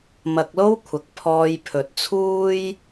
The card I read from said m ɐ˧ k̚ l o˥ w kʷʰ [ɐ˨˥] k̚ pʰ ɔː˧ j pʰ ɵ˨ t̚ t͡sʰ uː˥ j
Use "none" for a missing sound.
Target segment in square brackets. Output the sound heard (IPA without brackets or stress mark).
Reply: ɐ˨˥